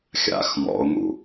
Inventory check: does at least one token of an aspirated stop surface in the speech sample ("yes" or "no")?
no